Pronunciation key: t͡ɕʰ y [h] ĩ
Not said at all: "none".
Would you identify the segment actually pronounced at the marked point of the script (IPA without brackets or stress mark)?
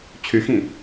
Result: x